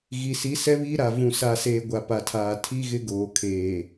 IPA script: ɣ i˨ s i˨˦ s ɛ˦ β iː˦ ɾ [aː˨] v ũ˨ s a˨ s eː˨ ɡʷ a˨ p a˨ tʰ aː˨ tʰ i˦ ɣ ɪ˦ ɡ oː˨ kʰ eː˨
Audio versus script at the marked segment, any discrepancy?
yes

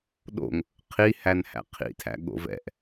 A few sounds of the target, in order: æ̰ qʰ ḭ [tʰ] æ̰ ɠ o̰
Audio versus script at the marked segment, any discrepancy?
no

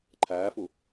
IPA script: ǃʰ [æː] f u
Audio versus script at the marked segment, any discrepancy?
no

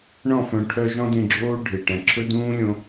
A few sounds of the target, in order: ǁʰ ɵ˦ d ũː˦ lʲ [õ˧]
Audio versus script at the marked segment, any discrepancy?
no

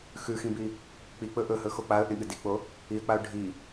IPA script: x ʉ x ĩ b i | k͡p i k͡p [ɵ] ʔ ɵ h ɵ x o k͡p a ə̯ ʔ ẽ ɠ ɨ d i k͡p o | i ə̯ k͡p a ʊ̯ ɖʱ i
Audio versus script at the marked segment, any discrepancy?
no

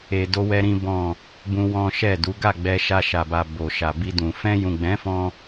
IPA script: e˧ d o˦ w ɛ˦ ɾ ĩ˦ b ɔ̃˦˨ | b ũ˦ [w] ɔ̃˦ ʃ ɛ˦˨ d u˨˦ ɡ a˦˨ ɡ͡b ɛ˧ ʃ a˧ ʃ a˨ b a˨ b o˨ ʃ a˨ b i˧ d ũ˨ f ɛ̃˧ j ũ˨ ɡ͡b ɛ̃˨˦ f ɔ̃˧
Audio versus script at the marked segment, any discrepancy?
no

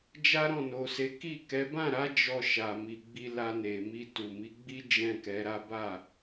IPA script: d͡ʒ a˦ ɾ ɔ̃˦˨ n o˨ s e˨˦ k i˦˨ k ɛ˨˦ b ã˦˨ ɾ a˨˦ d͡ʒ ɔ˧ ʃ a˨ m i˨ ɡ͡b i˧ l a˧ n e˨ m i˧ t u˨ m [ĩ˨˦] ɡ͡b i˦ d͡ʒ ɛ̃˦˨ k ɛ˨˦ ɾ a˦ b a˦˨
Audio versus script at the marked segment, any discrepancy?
yes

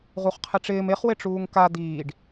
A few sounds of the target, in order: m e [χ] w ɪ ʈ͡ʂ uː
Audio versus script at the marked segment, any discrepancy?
no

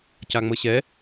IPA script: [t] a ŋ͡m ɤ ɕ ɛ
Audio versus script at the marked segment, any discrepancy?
yes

